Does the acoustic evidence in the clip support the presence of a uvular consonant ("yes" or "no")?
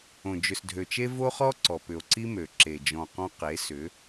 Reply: yes